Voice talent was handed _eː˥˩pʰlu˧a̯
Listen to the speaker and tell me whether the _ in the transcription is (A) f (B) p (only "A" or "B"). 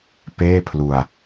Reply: B